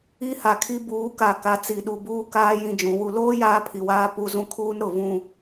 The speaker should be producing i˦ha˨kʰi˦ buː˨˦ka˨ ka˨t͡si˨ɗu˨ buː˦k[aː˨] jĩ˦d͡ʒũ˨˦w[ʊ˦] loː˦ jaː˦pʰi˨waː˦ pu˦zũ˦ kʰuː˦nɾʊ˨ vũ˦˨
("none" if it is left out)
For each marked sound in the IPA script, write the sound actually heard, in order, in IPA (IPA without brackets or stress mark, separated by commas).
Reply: aː˦, u˦